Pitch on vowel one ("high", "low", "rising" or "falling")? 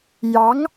rising